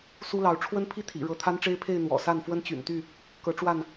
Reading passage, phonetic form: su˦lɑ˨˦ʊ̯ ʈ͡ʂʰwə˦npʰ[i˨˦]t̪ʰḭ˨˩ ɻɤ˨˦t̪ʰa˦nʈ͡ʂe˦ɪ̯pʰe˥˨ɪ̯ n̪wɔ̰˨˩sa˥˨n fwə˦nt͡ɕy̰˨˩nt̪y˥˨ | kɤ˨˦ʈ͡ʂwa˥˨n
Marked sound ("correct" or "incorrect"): incorrect